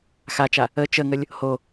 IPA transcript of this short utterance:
x a t͡ʃ a | ə t͡ʃ ə ŋ ə lʲ | h o

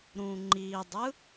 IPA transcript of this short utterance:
ɾ ũ ŋ͡ǃ i dˤ ɯ

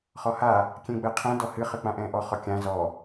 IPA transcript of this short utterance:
χ ɔ h a | kʲ ɛ̃ ɡ͡b ɛ qʰ ɛ̃ d ɔ h ɨ χ ɨ k͡p ã ʔ ɛ̃ː ʔ ɔ χ ɔ kʲ ã z ɔ

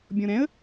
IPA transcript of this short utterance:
bʲ ɔ̃ ɾ ɛ̃ ə̯

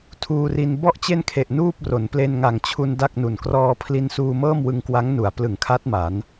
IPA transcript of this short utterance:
tʰ uː˧ r i˧ n b ɔ˥˩ ʔ t͡ɕ e˥˩ n kʰ e˨˩ ʔ n uː˥˩ p̚ r o˩˦ n p l e˧ n ŋ a˨˩ ŋ t͡ɕʰ u˧ n d a˥˩ k̚ n u˨˩ n k r ɔː˧ pʰ l i˧ n s uː˧ m ɤː˥˩ m w ɯ˧ ŋ k w a˦˥ ŋ n u˩˦ a̯ p l ɯ˩˦ ŋ kʰ a˦˥ t̚ m a˩˦ n

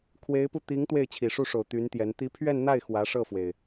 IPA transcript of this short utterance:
kʰ w e˧˥ ɪ̯ p u˧ t̪ i˧˥ ŋ t̪ w e˥˩ ɪ̯ t͡ɕʰ i˨˩ ʂ u˥˩ ʂ o˨˩ ʊ̯ t̪ y˧˥ n t̪ j ɛ˧˥ n t̪ i˧˥ pʰ ɥ ɛ˥˧ n n̪ a˥˩ ɪ̯ x w ä˧˥ ʂ ɤ˥˩ f w e˩ ɪ̯

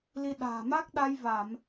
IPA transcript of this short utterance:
l i˧ ɗ a̤ː˨˩ m a˦˥ k̚ ɗ a˧ j v a˧˩˨ m

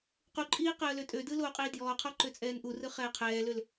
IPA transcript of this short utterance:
q u ǃʼ iː q əː l ø tʼ ø d ɯ l oː qʼ iː d j ɔː qʰ ɔ ǃ ø t͡sʼ ɛː n ʔ u r ɯ χ ɛː qʰ ɛː l ø l

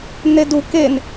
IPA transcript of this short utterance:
n e d u k e n

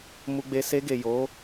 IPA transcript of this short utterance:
m u˧ ɡ͡b e˧ s e˧ ɡ e˨ j o˨˦

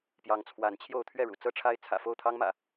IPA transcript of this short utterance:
p j ɑ˨˦ ŋ t͡sʰ w a˨˦ n t͡ɕʰ j o˥˨ ʊ̯ t̪ʰ ɥ ɛ˥˨ ɻ ṵ˨˩ t͡s ɤ˦ ʈ͡ʂʰ a˦ ɪ̯ t͡sʰ ä̰˨˩ f o˥˨ ʊ̯ t̪ʰ ɑ˦ ŋ m ä̰˨˩

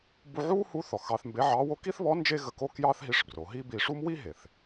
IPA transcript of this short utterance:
b u˧ ʕ u˥ h u˧˥ θ ɔ˩ x ɑ˧ θ m b e˧˥ ʕ ɑ˧˥ w o˧˥ k i˥ θ β ɔ˧˥ n d͡ʒ e˥ ɣ ə˧ k o˥ k j ɑ˥ θ ɦ i˧˥ ʂ b r o˩˧ ɦ i˥ b i˧ ʂ u˥ m w i˥ ɦ e˩ θ

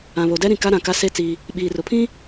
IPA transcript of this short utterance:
ã˨ β o˨ d ɛ˦ ɾ ĩ˨ k a˦ ɾ ã˨ k a˦ s e˦ t͡s i˦ | ɓ iː˨ r ʊ˨ pʰ ĩ˦

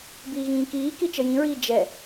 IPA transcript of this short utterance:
b iː ɣ ĩː k iː k i t͡ʃ ə j ĩ ɹ iː d͡ʒ ɛ

